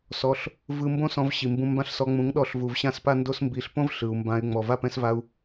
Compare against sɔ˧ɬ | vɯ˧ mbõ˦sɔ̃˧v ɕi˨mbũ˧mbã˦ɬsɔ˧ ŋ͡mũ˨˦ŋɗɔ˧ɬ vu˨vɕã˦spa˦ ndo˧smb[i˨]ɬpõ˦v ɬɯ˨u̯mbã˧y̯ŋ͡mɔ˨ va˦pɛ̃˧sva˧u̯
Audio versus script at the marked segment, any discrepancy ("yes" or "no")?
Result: no